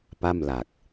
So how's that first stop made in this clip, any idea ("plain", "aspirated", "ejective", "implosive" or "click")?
plain